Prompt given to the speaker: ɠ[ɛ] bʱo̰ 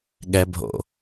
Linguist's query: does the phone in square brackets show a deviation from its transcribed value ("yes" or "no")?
no